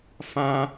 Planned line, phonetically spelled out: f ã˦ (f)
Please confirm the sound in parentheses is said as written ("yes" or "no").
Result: no